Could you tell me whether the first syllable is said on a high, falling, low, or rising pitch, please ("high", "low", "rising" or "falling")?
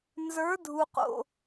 rising